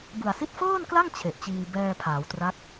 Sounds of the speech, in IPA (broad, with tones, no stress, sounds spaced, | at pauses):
b ɯ˨˩ a̯ s i˥˩ t̚ f ɤː˥˩ n k l a˥˩ ŋ t͡ɕʰ e˨˩ ʔ t͡ɕ iː˧ b ɛː˧ pʰ aː˩˦ w t r a˦˥ k̚